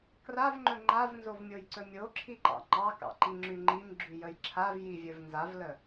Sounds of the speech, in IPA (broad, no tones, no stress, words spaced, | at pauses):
kravŋ͡ǃɵ ŋ͡ǃavnzovmʲojǀɵ mʲoǁʰiǃɑ̰ ŋ͡ǃɑkɑ̰ǃiŋ͡ǁy ŋ͡ǃimɡ͡ǁyjəj ǁʰavjivʲɵv nzavlə